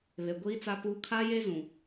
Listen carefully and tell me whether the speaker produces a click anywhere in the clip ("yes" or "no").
no